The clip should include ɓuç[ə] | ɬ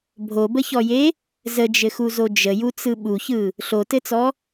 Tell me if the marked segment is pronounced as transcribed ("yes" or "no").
no